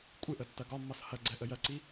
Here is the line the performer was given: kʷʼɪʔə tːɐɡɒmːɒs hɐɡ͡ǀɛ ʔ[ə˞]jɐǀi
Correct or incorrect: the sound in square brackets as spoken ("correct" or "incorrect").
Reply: incorrect